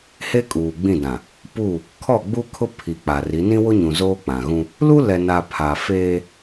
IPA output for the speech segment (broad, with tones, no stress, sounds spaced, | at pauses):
h e˦ kʼ uː˨ ɡ͡b ĩ˦˨ d ã˨ | p u˦˨ | kʰ ɔ˦˨ ɡ͡b u˦ kʰ ʊ˦ pʰ i˨ k͡p a˨ r i˨˦ n ĩ˦ w ʊ˦ ɲ ũ˨ z oː˦ k͡p ã˨ ɣ ũ˦ | l u˦ l ɛ˨ n a˨ pʰ a˨ f eː˦